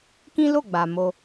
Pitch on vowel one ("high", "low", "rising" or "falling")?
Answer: high